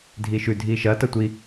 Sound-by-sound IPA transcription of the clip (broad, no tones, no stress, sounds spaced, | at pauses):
dʱ i ʃ ʉ dʱ i ʃ ɐ t ɐ tʷ i